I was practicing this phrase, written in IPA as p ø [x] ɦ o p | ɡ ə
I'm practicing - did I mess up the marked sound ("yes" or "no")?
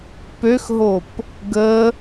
no